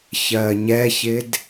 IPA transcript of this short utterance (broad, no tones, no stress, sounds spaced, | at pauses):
ç ɜ ɲ ɛ ç ɪ d